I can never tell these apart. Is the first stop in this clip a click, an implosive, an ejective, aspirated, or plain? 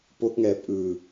plain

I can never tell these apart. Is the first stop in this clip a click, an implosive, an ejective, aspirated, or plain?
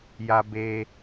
plain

